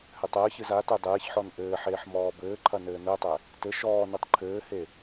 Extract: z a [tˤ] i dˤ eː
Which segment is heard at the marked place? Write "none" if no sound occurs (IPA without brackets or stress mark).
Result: t